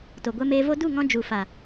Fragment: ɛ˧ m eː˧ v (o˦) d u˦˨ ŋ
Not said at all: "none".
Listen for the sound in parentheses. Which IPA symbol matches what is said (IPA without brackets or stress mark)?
o˦